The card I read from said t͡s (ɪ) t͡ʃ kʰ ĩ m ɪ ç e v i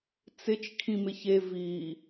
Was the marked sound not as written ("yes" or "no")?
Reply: no